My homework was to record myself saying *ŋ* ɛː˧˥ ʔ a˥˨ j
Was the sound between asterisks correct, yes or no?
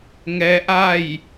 yes